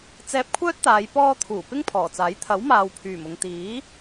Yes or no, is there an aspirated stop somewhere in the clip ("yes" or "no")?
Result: yes